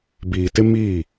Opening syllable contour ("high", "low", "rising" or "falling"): low